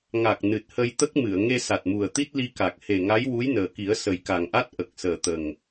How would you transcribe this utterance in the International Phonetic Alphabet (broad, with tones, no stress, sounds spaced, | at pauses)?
ŋ a˨˩ k̚ n ɨ˨˩ t̚ h ə˧ j t̪ ə˦˥ k̚ m ɨ˨˩˨ ə̯ ŋ e˧ s a˨˩ t̚ m u˨˩ ə̯ t̪ i˦˥ t̚ l i˧ k a˨˩ k̚ h e˨˩ ŋ a˧˥ j w u˧˥ j n əː˨˩ k i˨˩˦ ə̯ s ə˨˩ j k a˨˩ ŋ ʔ a˦˥ t̚ ʔ ə˨˩ k̚ s əː˨˩ t̪ ə˨˩ ŋ